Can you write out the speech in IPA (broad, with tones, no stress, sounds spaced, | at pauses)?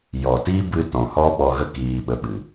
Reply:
j ɔ˨ t i˦ b ɨ˧ t ɔ̃˨ h ɔ˦ ɓ ɔ˧ ɣ ə˦ k iː˧ ɓ ə˧ ɓ ɨ˨